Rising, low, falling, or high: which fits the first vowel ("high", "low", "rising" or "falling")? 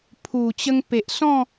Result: low